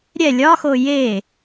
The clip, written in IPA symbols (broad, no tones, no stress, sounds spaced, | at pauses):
ɾʲ ɛ lʲ ɒ x o j e